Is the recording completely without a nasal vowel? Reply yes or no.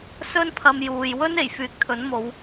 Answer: yes